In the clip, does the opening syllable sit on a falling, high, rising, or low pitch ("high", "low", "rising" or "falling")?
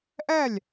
falling